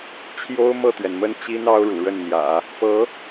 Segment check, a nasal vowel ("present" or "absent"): absent